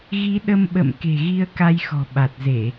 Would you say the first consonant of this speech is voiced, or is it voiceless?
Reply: voiced